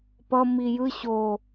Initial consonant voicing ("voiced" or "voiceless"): voiceless